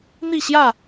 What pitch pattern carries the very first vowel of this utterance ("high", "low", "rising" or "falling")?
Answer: falling